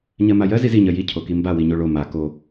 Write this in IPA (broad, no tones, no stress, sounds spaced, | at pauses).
ɲ ɜ m a j ɜ z i z i ɲ ɜ j i cʰ o k i m b a w i ɲ o ɭ o m a k o